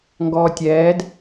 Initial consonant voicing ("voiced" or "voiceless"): voiced